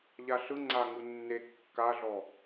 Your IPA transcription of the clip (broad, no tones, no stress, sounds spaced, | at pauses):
ʎ a ɬ ɯ ŋ͡ǀ a ŋ u nː e kː a ɮ ɔ